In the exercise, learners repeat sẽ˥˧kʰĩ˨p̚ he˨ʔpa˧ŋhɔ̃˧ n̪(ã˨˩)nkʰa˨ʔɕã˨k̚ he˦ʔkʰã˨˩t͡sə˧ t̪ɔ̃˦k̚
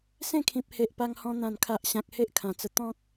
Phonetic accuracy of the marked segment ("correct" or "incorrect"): correct